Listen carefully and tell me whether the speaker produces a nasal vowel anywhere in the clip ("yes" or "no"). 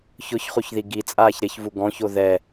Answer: yes